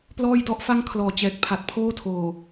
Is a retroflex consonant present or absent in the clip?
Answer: absent